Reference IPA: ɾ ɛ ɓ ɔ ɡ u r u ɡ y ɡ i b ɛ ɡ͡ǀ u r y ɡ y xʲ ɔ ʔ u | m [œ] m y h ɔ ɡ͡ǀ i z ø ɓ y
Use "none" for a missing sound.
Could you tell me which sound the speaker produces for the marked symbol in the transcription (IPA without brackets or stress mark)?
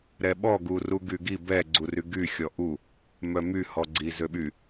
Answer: œ